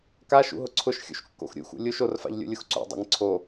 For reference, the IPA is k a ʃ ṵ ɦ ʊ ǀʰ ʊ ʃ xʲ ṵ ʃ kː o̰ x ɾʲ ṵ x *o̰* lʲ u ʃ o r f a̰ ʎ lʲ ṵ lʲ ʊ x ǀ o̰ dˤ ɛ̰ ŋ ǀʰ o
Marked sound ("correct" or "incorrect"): incorrect